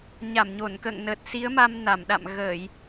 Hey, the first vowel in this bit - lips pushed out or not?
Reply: no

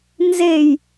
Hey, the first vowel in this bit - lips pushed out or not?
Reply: no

